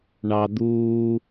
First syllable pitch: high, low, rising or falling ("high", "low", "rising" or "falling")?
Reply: high